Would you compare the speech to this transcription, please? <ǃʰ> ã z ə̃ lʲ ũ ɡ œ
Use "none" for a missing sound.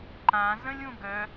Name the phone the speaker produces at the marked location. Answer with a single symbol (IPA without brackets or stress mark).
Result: ǃ